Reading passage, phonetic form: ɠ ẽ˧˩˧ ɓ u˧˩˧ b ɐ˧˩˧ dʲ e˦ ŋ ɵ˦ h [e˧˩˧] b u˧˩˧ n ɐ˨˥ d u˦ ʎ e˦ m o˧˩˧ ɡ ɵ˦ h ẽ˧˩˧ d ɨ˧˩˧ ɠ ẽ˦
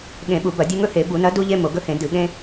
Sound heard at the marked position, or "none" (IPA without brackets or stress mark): e˧˩˧